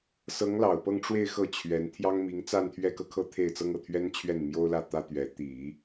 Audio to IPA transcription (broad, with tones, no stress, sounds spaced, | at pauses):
s ɤ˧˥ ŋ l ɑ˨˩ ʊ̯ p ɤ˥˧ ŋ ʈ͡ʂ w e˥˧ ɪ̯ x ɤ˥˩ t͡ɕʰ ɥ ɛ˧˥ n t̪ʰ j ɑ˥ ŋ m i˧˥ ŋ t͡s a˥˧ n t̪ʰ ɥ ɛ˥˧ k ɤ˥˧ kʰ ɤ˥˧ t̪ʰ e˥˩ ɪ̯ t͡s ɤ˥ ŋ ɤ˨˩ t̪ʰ ɥ ɛ˥ n t͡ɕʰ ɥ ɛ˥˩ n m j o˥ ʊ̯ l ä˥˩ t̪ ä˥ t̪ ɥ ɛ˧˥ t̪ i˨˩˦